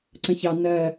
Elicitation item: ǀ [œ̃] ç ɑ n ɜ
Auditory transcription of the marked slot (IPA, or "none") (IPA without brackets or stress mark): ə̃